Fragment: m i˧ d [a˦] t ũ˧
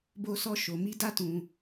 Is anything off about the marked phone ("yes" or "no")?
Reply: no